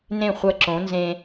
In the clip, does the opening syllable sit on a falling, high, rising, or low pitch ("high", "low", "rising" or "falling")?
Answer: falling